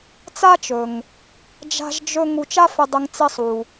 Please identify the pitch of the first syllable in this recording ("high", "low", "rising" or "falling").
high